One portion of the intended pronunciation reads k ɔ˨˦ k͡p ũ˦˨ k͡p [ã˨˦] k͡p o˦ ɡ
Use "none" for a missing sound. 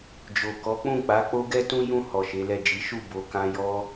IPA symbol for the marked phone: a˨˦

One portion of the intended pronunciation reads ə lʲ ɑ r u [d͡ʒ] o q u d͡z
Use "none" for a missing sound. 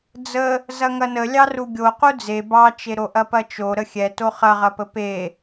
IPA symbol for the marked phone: ɡʲ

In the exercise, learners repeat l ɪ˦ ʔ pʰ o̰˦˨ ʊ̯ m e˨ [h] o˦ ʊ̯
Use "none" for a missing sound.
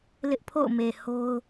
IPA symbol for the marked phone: h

